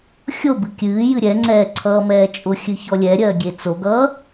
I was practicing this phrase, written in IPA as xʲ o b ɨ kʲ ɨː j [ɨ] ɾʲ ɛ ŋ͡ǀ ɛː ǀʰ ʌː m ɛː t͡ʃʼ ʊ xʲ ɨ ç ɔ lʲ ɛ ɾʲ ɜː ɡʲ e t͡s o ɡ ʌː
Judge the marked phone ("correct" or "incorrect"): correct